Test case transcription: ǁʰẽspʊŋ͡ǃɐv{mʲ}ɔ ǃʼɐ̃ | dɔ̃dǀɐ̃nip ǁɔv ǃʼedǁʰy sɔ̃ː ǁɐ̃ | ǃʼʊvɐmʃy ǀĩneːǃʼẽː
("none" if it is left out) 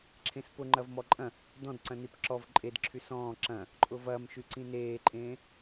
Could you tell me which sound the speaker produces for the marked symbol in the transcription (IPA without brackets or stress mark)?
m